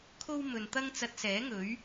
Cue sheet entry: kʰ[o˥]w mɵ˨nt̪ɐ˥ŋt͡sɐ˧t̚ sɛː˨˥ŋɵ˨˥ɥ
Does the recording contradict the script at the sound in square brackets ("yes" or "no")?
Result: no